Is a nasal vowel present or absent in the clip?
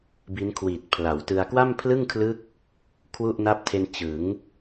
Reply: absent